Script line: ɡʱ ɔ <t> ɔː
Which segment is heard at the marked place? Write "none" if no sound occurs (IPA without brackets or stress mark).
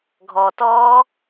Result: t